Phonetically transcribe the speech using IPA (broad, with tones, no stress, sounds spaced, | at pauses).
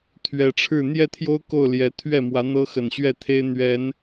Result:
t̪ʰ ɥ ɛ˨˩ ʈ͡ʂʰ ɻ̩˥˨ n̪ j ɛ˥˨ t̪ʰ j o˦ ʊ̯ k o˥˨ ʊ̯ l j ɛ˨˦ t̪ʰ ɥ ɛ˥˨ m w ä˨˦ n̪ ɤ˦ x ə˨˩ n ɕ ɥ ɛ˥˨ t̪ʰ e˦ ɪ̯ n̪ ɥ ɛ˨˦ n